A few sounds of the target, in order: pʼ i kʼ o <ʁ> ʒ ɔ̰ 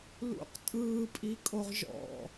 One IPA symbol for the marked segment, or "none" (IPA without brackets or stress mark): ʁ